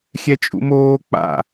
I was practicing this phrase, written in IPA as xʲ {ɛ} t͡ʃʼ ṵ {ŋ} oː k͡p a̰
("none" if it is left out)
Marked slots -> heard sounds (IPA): ɛ, m

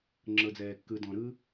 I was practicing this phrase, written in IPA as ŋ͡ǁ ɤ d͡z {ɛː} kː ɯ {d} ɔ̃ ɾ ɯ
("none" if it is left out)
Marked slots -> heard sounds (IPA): ɛː, d

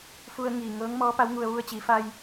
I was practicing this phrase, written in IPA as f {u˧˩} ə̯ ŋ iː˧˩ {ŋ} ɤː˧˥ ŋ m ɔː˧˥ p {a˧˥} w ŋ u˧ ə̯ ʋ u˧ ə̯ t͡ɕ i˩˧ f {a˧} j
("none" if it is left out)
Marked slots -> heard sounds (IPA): u˧, ŋ, a˧˥, a˧

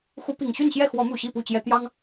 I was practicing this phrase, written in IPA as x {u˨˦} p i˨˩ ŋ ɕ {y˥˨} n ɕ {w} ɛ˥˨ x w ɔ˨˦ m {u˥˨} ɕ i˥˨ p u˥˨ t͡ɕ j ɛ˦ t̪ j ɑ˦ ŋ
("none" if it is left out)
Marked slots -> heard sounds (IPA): u˨˦, y˥˨, j, u˨˩

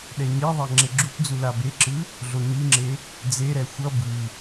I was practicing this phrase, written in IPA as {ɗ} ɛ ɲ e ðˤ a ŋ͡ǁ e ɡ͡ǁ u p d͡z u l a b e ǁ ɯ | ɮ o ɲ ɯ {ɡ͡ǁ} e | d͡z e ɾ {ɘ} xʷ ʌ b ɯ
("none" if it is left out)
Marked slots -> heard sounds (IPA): ɗ, ŋ͡ǁ, ɛ

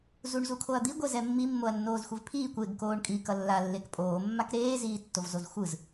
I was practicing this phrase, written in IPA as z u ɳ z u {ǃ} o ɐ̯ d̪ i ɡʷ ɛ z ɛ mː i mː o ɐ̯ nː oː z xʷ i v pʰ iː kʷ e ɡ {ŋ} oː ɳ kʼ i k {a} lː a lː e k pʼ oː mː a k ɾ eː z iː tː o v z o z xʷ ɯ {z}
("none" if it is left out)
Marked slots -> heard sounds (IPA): kʰ, k, ʌ, z

